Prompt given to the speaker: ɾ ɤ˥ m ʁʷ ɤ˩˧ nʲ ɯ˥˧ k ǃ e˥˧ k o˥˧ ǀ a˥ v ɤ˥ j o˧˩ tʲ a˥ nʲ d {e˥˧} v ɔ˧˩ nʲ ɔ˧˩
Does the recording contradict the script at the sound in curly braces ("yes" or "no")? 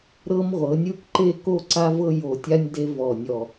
yes